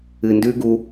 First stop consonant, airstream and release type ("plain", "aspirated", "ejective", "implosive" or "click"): plain